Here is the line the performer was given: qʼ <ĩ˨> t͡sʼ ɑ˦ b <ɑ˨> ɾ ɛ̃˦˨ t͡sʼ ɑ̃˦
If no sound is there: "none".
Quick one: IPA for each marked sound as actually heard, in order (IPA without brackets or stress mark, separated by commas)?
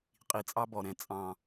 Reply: i˨, ɔ˨